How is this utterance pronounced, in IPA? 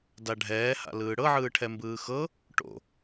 daɖʱɛːha̰ lɯːɽɤʕɯːʈʰɛ mbɯːxɤ | ʈo̰

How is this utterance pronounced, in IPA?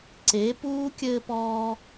ǀe˨˦ puː˦ kʲɘː˧pɔː˧

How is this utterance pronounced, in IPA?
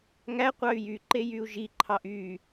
ŋæqʷɑy̯ jyǃe jyu̯ʒiǃʰɑʔ y

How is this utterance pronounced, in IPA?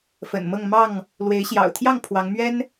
fə̰˨˩nmɤ˥˨ŋ mɑ˥˨ŋ | lwe˨˦ɪ̯ɕjɑ̰˨˩ʊ̯t̪ʰjɑ˥˨ŋ pʰwɑ˨˦ŋmɥɛ˦n

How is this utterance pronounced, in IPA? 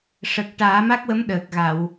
ʂə˨˩k̚ ʈaː˨˩˦ma˦˥k̚wə˧˥m ɗəː˨˩k̚ɣa˨˩˨w

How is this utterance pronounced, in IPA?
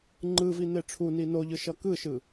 ŋ͡ǃɯvi n̪eʈ͡ʂʰuni noʎɯ ʃʌkɯʃɯ

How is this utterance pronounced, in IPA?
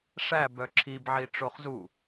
ʂæbœ ǁʰibʕi ʈ͡ʂoχzu

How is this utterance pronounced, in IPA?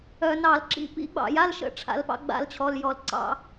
œ˧˩˧nɑ˧˩˧lǁḭ˨˥ pḭ˨˥ɡ͡bɑ̰˧˩˧ja˧˥˧lʃə̰˧˩˧ ʈ͡ʂʰa̰˨˥lpɑ̰˨˥ ɡ͡ba̰˥lt͡ɕʰɔ˧˥˧ljɔ˥˨l ǀɑ̰˥

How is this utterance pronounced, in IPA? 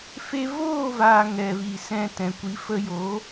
fe˧voː˦˨vaː˨ ŋɛ˨vi˨sɛ̃˧ tɛ̃˨kʷi˨˦fə˧joː˨˦

